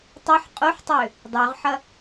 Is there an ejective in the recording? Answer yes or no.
yes